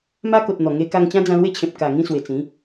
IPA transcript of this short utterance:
m a˦ k o˨ t̚ n̪ ɔ˨˩ ŋ e˧ k a˧ ŋ t͡ɕ ã˦ d͡z ã˧ l w e˦ t͡ɕʰ ẽ˨ p̚ k a˨˩ ŋ ĩ˥˧ s w e˨˩ t͡s ĩ˨˦

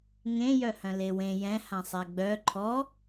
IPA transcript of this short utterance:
ŋ ẽ j œ h œ̃ l e w ẽ j ɛ̃ h ã sˤ ɛ ɡ͡b œ ǃʰ ɔ

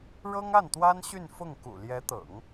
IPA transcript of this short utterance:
ɻ ɤ˥ ŋ a˥˩ n t̪ w a˥ n ɕ y˥˧ n f ʊ˥˩ ŋ k ṵ˨˩ l j ɛ˧˥ t̪ ɤ̰˨˩˦ ŋ

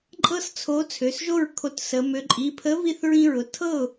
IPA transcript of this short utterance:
ǃʼ ɤ˦ s t͡sʰ o˨˥ t͡sʰ ø˩˧˩ s ʒ o˥˩ ɹ kʰ o˧˩ t s ə˩˧ m ø˩˧ ǃʼ i˩˧˩ pʰ ə˨˥ v i˥˩ θ ɹ ĩ˦ ɹ ʊ˩˧˩ tʰ ɤ˥˩ ʊ̯

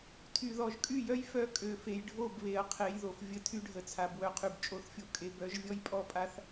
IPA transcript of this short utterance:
tʰ y˨ ð ɔ˨ ʒ kʼ y˦˨ j œ˦ j f œ˦ kʼ ø˨ f e˨ j ɖʱ o˦˨ b β e˨ ɐ̯ qʰ e˨˦ j ð o˨ f vʲ ə˦ tʰ y˦ ɖʱ ə˨ t͡sʰ a˨ b w œ˨ qʰ y˨ b t͡ʃʼ o˦˨ θ fʲ o˦ kʼ e˦ b œ˨˦ ʒ vʲ ɔ˦ j pʼ ɔ˦˨ pʼ a˦ θ

